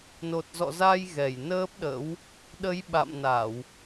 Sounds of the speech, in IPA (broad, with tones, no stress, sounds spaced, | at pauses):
n o˨˩ t̚ z ɔ̰˧˨ z a˧ j ɣ ɛ˧˩ j n əː˦˥ p̚ ɗ ə̰˧˥ w | ɗ ə˨˦ j ɓ a̰˧˨ m n a˧˩˨ w